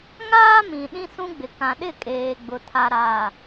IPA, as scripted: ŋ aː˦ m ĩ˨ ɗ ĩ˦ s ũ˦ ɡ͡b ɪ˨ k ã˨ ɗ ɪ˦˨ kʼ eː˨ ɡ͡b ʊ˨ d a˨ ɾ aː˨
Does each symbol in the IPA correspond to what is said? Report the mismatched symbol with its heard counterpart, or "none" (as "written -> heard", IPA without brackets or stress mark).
d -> tʰ